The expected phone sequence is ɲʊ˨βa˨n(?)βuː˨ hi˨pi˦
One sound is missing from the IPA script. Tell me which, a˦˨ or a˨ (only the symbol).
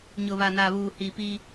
a˨